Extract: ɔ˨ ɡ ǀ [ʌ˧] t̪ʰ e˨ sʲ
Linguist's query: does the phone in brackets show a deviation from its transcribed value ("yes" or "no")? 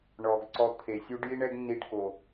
yes